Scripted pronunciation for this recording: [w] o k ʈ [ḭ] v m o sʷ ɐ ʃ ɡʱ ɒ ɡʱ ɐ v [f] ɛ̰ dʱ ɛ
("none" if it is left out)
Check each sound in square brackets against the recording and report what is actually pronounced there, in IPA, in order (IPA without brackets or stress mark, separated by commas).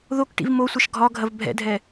ð, ḭ, bʱ